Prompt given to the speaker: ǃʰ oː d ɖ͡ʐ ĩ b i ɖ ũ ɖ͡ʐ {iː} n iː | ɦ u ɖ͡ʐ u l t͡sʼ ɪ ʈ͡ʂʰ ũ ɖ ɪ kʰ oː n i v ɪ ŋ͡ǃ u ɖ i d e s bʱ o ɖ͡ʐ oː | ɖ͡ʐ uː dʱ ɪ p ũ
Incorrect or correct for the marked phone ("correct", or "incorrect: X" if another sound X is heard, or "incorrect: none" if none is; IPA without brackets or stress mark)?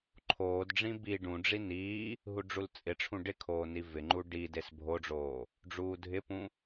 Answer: incorrect: i